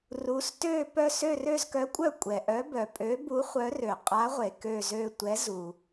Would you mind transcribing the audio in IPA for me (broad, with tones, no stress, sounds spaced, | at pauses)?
r u˨˥ s t ø˦˨ p œ˦˨ s ø˦˨ r ø˦˨ z k œ˨˥ kʷʼ œ˦˨ kʷʼ ɛ˩ ʔ œ˨˥ b œ˩ pʼ ø˨˥ b u˨˥ χʷ œ˨˥ r ø˩ qʼ a˨˥ ʁʷ e˩ k ø˦˨ z ø˦˨ tʷ ɛ˨˥ z u˩